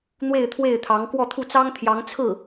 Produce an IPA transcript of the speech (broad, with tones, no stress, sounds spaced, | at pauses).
n̪ w e˥˧ ɪ̯ t̪ʰ w e˥˩ ɪ̯ t̪ʰ ɑ˧˥ ŋ k w ɔ˥˧ t̪ʰ u˥˩ t͡s ɑ˥ ŋ t̪ʰ j ɑ˧˥ ŋ t͡sʰ ɹ̩˥˩